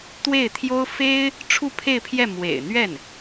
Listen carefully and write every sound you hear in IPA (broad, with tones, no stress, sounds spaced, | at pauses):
t̪ w e˥˩ ɪ̯ t̪ʰ j o˥ ʊ̯ f e˥ ɪ̯ | ʈ͡ʂʰ u˥˧ pʰ e˥˧ ɪ̯ pʰ j ɛ˥˩ m w ḛ˨˩ ɪ̯ n̪ ɥ ɛ˥˩ n